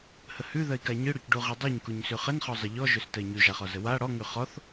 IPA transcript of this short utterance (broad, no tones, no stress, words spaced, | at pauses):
həhʉðɜi̯ kaɲɯɽoc ɖuʁidˤʉɲkuɲ sʉχənχɔ zˤəʎɔʒøs tɜi̯ɲʉʒaχɔ zəwa ɽɔ ŋʉχɔθ